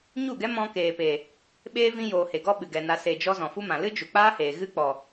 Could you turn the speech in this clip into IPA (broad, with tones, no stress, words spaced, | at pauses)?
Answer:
ɲu˦˨ɡɛ˦ mɔ̃˧keː˨pe˨ | ɓeː˦ vĩ˧joː˨he˨ɡɔ˧ ɓɨ˨ɡɛ˨ na˨ se˨d͡ʒɔ˧ zɔ̃˨fu˦mã˨ lɨ˦ d͡ʒu˨k͡paː˦heː˨ ɣɨ˦k͡pɔ˨